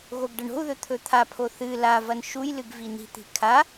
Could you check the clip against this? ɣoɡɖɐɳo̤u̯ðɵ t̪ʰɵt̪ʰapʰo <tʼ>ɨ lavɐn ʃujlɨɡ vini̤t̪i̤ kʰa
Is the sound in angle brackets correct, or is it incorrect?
incorrect